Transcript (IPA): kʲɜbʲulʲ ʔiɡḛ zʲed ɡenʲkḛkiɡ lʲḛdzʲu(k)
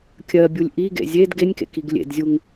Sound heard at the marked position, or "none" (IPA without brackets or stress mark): ŋ